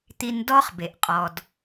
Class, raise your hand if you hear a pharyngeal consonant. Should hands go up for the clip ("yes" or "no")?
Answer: no